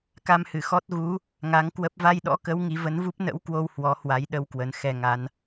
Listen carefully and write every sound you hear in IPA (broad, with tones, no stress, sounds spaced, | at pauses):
k a˧ m h ɨ˧˩ x ɔ˦˥ t̚ ɣ u˨˦ | ŋ a˨˦ ŋ k w ə˦˥ p̚ v a˧ j ɗ ɔ̰˧˥ k ə˨˦ w ŋ i˨˦ v ə˨˦ n v u˦˥ p̚ n ə̰˧˥ w k w o˧ w h w ɔ˨˦ h w a˨˦ j ɗ ə˧ w k w ə˨˦ n x ɛ˧ ŋ a˨˦ n